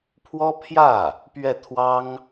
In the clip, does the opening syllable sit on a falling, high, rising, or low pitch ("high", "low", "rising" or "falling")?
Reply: high